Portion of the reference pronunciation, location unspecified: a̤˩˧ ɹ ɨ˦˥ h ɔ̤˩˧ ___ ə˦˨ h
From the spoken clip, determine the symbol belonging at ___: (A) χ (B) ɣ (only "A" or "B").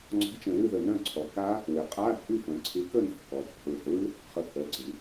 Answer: A